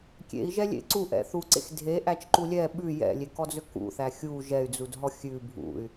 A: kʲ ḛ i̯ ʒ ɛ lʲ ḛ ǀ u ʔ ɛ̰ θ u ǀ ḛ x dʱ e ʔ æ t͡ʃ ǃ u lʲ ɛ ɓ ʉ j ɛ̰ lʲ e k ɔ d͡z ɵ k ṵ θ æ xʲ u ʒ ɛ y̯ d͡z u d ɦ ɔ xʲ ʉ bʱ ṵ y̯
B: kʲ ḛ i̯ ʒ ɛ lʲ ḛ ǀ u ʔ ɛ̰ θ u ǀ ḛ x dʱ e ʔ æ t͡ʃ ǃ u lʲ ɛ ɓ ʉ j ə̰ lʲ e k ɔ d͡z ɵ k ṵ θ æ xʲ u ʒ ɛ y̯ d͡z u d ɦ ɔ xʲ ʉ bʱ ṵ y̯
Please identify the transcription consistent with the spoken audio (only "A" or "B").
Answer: A